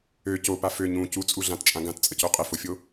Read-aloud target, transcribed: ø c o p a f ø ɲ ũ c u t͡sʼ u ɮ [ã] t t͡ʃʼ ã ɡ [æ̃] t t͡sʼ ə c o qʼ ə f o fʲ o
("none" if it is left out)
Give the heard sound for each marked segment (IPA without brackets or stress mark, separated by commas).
ã, ã